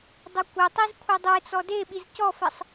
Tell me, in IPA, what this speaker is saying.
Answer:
dˤ ə kʷ e tˤ i z kʷʰ ɛ dˤ e t͡s ɔ d e ɓ i z c ɔ f ɛ sˤ

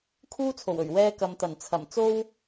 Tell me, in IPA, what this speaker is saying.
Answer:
kʰ uː˥ t͡sʰ o˨˩ w ɵ˨˩ ɥ w ɛː˥ k ɐ˨ m t̪ ɐ˨˩ n t͡sʰ ɐ˨˩ m t͡s o˥ w

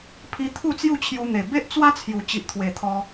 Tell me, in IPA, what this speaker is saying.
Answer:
pʰ i˦ t̪ʰ u˥˧ t͡s j u˥˧ t͡ɕʰ j u˧ n̪ e˨˩ b e˦ ʔ t͡s w a˦ t͡sʰ j u˨˩ t͡ɕ i˨ ʔ t̪ʰ w e˨˩ t̪ʰ ɔ˧

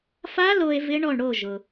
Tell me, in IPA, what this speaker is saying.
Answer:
f a˦˥ l o˧ e̯ v ɪ˦˥ ɳ ɔ˥˩ ɳ ɽ o˥˩ ʒ ʊ˩

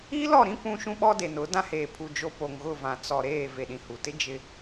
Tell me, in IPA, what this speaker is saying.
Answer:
i˦ l ɔ˦˨ ɾ ĩ˦ p ũ˦ ʃ ũ˦ ɓ ɔ˦ d e˨ n ʊ˨˦ d ã˦ h eː˨ pʰ u˨ d͡ʒ o˦ p o˨ ŋ ɣ ʊ˦˨ v ã˨ t͡s ɔ˨ ɾ eː˦˨ v e˦˨ ɗ ĩ˦ h u˨ t ɪ˦ d͡ʒ ɪ˦

